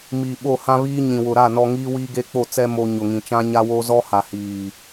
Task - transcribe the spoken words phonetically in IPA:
m iː˨ ɓ o˦˨ h ã˦ β iː˦ ɲ ĩ˨ w ʊ˨ ɾ a˦˨ n ɔ˦ ŋ iː˦ w iː˦ ɡ e˦ k͡p o˦˨ t͡s ɛ˦ m o˦ ɲ ʊ˨ ŋ ĩ˨ t͡ʃ ã˦ ɲ a˦ w o˦ z ɔ˦ h a˨ h iː˨

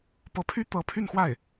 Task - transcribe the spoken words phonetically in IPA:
p ɤ˧˥ pʰ y˥ t̪ ɤ˧˥ pʰ y˥˧ n x w a˥˩ ɪ̯

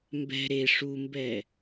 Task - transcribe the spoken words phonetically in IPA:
m b ɛ̤ ɾ e ʂ u m b ɛ

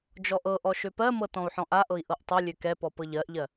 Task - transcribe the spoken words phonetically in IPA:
d͡ʒ ɔ ʔ ɤ ʔ ɔ ʃ ø p ɜ m ɤ t ɔ̃ u̯ ħ ɔ̃ ʔ a ʔ ɤ i̯ ʔ ɤ ʔ tˤ ɛ lʲ ø k ɛ p ɔ p ɤ ʎ ɜ ʔ ʎ ɜ

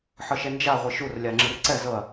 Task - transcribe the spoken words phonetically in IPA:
ħ ɤ ʃ ɛ n d͡ʒ a ʁʷ e ʃ u r lʲ a ŋ͡ǁ ɯ r ǀ ɛ z ɤ ɐ̯

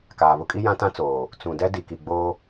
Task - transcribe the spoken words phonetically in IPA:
k aː˨ β ʊ˦ kʼ i˦ j ã˦ t ã˦ t͡s oː˨ | t͡s ũ˨ d ɛ˦ d i˨ k i˨ ɡ͡b oː˦

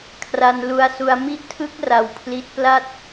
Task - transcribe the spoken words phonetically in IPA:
kʰ r a˧ n l u˧ a̯ s u˧ a̯ m i˦˥ ʔ tʰ ɯ˦˥ k̚ r a˧ w pʰ l i˦˥ t̚ p l a˥˩ t̚

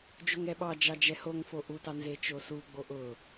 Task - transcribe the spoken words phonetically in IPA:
d͡ʒ o ŋ ɛ ɓ ɑ d͡ʒ ɑ d͡ʒ ɛ h o ŋ f o ʔ u t ɑ n z e t͡ʃ o s u ɡ͡b o ʔ ʊ

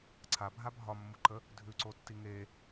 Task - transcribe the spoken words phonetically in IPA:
ǀʰ a bʱ a bʱ ɒ mː u ǃ ə | dʱ ʉ ǀ o tː i ŋ e

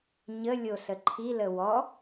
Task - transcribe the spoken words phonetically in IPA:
ɲ ə lʲ o ɬ ə ǃʰ i l ə w ɔ

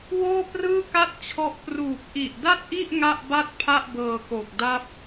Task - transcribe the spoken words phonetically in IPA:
w oː˥˩ p r ɯː˥˩ k a˥˩ t̚ t͡ɕʰ ɔ˦˥ ʔ p r uː˨˩ p̚ ʔ i˨˩ ʔ d a˥˩ t̚ ʔ i˥˩ ʔ ŋ a˥˩ ʔ b a˥˩ t̚ pʰ a˥˩ ʔ b ɤː˧ k o˨˩ k̚ d a˥˩ p̚

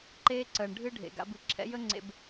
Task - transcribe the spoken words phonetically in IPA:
ǃ eː˦ ǀ əː˨ ɳ ɖʱ ɨ˦ ɖʱ ḛ˨ ɡ a̰˨˦ b ɨ˨ ǁʰ ɛ̰˦ j ə˦ ŋ͡ǀ ḛ˨ b

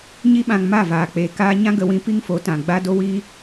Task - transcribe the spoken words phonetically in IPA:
ɲ i˦ ɓ ã˧ ŋ m a˦˨ v aː˨ k͡p eː˨ k aː˧ ɲ ã˦ ɡ ə˧ w ĩ˧ p i˦ ŋ f o˨˦ t ã˨ ɡ͡b a˧ d o˧ w i˧

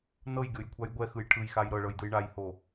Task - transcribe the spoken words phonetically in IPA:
n ɤ j ɡʲ o j kʷʰ a j ɡʷ ɛ x ɯ j ʈʰ ɯ j x a j ɾ ɤ ɭ ɤ j d ɯ j ɳ a j h o

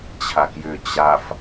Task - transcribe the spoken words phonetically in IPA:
t͡ɕʰ a k j ʏ t͡ɕ a f

